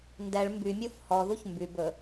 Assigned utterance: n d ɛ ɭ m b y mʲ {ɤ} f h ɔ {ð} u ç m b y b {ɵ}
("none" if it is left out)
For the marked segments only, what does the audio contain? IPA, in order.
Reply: o, ð, ɵ

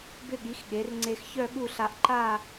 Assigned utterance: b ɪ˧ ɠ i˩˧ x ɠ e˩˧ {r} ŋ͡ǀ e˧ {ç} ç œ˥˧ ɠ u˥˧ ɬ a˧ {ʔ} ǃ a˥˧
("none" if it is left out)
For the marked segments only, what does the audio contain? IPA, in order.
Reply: r, x, ʔ

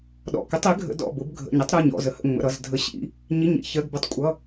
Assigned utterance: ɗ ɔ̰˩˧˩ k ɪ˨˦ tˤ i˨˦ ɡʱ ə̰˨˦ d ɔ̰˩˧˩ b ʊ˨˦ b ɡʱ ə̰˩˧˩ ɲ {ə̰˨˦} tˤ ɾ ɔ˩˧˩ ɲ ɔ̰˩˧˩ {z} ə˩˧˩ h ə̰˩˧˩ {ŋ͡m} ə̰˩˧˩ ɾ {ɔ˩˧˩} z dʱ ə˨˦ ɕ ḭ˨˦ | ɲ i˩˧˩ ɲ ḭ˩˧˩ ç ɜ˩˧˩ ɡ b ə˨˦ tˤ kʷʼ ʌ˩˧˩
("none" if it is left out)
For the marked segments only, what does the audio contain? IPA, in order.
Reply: ə˨˦, z, ŋ͡m, ʌ˩˧˩

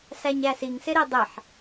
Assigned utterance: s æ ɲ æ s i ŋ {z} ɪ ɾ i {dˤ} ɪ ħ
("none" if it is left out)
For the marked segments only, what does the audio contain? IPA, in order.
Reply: s, dˤ

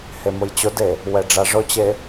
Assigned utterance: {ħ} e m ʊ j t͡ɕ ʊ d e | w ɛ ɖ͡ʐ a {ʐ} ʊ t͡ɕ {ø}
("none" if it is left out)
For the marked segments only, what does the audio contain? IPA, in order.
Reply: h, ʐ, e

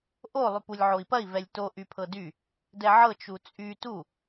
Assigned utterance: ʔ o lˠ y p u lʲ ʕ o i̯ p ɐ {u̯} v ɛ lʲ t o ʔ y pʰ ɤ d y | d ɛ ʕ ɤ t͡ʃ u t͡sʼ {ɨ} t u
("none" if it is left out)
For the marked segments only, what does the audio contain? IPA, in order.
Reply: i̯, y

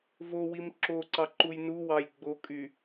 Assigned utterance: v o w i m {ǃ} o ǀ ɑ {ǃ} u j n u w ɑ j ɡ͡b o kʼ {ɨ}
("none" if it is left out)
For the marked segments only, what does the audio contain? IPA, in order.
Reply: ǁ, ǃ, y

